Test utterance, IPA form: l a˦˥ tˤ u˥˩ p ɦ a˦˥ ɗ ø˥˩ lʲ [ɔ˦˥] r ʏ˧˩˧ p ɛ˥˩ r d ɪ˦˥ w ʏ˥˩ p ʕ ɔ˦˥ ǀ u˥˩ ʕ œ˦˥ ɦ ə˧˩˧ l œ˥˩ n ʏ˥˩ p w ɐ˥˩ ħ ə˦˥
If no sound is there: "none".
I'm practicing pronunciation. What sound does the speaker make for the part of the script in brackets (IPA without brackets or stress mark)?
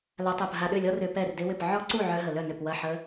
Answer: ɔ˦˥